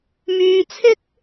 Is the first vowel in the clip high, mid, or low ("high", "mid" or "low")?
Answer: high